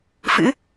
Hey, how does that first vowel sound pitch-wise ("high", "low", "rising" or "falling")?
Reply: rising